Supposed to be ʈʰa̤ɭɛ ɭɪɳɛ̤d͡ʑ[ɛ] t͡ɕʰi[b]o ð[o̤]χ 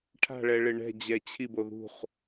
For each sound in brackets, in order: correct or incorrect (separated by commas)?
correct, correct, incorrect